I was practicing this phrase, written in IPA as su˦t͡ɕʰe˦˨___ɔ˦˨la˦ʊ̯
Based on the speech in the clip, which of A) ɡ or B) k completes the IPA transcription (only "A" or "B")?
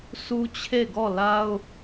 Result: A